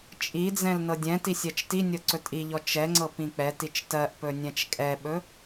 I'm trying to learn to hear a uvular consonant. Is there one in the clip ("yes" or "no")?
no